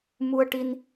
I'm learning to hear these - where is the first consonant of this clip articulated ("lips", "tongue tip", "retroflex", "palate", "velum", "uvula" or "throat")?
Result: lips